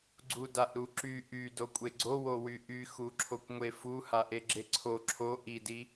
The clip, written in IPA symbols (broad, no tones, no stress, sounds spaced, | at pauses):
ɡ͡ǀ u d a ʔ ɾ u ǁ y ʔ y d o kʷʼ e ɡ͡ǀ o w o w y ʔ y x u ǁʰ o kʷ ŋʷ e f u h a ʔ e ɡ͡ǁ e ǀʰ o ǁʰ o ʔ i d i